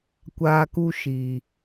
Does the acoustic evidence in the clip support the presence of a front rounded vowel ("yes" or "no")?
no